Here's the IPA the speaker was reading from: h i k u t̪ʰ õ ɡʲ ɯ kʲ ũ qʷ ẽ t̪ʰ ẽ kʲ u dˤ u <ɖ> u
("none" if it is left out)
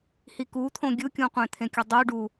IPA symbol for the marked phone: ɖ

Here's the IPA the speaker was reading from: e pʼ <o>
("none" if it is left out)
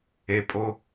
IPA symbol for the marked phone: o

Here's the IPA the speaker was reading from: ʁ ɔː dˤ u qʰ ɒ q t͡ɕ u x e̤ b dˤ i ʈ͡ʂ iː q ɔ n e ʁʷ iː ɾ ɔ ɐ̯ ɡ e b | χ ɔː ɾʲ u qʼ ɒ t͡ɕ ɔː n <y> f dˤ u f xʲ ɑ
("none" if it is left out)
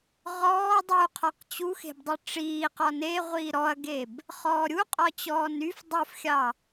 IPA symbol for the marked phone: y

